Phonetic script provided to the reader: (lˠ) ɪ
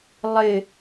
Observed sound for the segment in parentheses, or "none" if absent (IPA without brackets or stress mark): lˠ